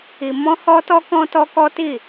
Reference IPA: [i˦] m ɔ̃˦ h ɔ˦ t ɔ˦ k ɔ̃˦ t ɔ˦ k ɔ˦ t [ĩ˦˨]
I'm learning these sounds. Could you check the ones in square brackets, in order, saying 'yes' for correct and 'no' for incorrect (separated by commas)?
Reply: no, no